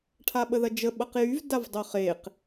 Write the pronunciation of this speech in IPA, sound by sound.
ʈʰaɓəðɐd͡ʒə ɓɐqjyv davdˤoχeq

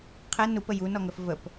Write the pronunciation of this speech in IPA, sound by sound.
qʰɛ nupə junɔŋəf vəp

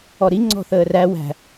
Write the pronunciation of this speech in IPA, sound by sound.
ɔɾi ŋ͡ǀɔ̤θəːræ wæ̤

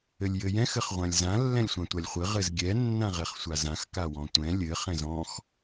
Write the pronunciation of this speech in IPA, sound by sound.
ɘlʲjɘjɛ̃x ɘχʁʷãlʲzã lːɛ̃lʲsʷãtʷalʲχʷɘ ʁɘzɡʲɛ nːãʁɛχsʷazãx kawɔ̃tʷɛ̃ lʲɘ χɛ̃zɔ̃x

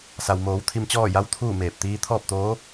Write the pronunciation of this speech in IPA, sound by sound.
sa˩wmoː˩˧w t̪ʰi˧mt͡ɕɔː˥˨ ja˧˥wt̪ʰuː˥˨meː˧˩p̚ t̪iː˧t̪ʰɔː˥˨p̚t̪oː˧˥

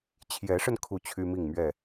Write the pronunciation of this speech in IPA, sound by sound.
t͡ɕʰjɛ˨˦ʂə˧n kʰu˥˨t͡ɕʰy˦mi˥˨ŋmɥɛ˥˨

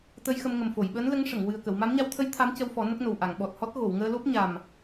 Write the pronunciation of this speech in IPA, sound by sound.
t̪ə˧jxə˧mŋə˨˩m fo˨˩˨jɓəː˧˥nlə˧˥ŋʂə˨˩˨ŋ wɨ˨˩ə̯kə˨˩˨wma˧˥m ɲa˧wt̪ʰə˧˥j t̪ʰa˧˥mcə˧wfɔ˨˩˦ nə˦˥k̚no˨˩w ʔa˨˩˨ŋɓɔ˨˩t̚hɔ˦˥t̚ ɣo˨˩˨wŋəː˧lo˦˥p̚ ɲa˨˩m

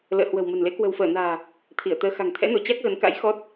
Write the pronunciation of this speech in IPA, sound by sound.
lə̰ː˧˨hwə̤˨˩wmə̤˨˩nle˨˦ kwə̤˨˩wfəː˧˩na̤ː˨˩ | t̪ʰi˧˩ə̯t̪əː˧ xa̤˨˩ŋt̪ʰɛ̰˧˥no˧˩ t͡ɕa˦˥k̚ɣə˨˦n ka̰˧˥j xɔ˦˥t̚

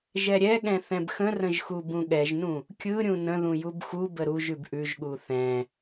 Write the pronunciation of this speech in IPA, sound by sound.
ʒɛɾʲɛɠɛ̃ θɛ̃bxə̃rə̃ʒ xubũɠɛʒnũ | kʲɯ ɾʲũnə̃ðũ jubxubə ɾuʒʉb ʔʉʒɠu θɛ̃

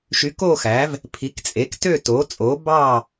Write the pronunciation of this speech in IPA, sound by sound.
ʃy˩˥koː˥˨xæː˩˥v | pʰi˩˥kt͡sʼe˩˥ktø˥˨ toː˩˥ t͡sʼoː˩˥ bɑː˥˨

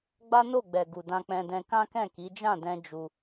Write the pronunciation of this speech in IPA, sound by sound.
ɡ͡ba˦no˦˨ɡ͡bɛ˨ ɡu˨dã˧ k͡pɛ̃˧dɛ̃˧ kã˦kɛ̃˦˨ki˨˦ d͡ʒã˦˨dɛ̃˧ d͡ʒu˧

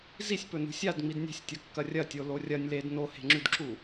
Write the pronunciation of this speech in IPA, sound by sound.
zisʲpɵnṳ sʲadŋ͡mid nʲe̤sʲtʲɐkːɐ rʲɐtʲolo rʲɐnʲ led nohe̤ŋ͡ǁʉdǁu

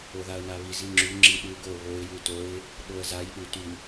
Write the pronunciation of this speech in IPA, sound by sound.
oðaə̯naβiz iŋ͡ǁʉ ŋ͡ǁiɗʉ ɡo βoɪ̯ jʉtoɪ̯ | ɗoə̯zaj ɗʉ ty

